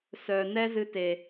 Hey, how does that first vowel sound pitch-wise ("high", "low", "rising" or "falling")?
low